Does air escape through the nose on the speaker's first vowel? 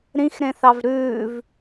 yes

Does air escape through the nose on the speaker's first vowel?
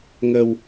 no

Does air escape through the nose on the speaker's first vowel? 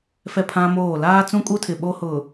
no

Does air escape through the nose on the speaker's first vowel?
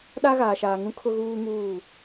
no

